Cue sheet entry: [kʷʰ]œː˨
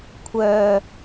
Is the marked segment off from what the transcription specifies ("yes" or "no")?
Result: no